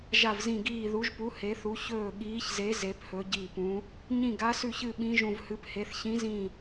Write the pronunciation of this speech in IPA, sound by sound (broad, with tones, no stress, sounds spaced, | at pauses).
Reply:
ʒ a˧˩ v z ĩ˧˩ ɡ iː˧˩ ð u˨˦ ʒ p u˨˦ h e˨˦ θ u˨˦ ç ɵː˧˩ ɠ iː˨˦ ç z e˨˦ z e˨˦ p h ɵ˨˦ ɟ i˧˩ p ũ˨˦ | ɲ ĩ˧˩ ɡ a˨˦ s ʉ˧˩ ç ɨ˧˩ ɓ ĩ˨˦ ʒ ũ˧˩ v h ɨ˨˦ p h e˨˦ θ ç ĩ˨˦ z ĩ˧˩